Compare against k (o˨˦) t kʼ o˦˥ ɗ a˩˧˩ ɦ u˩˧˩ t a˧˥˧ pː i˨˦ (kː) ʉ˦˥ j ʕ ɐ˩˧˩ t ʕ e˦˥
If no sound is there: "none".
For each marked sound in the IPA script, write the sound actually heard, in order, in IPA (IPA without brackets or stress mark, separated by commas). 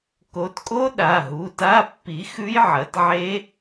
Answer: o˨˦, x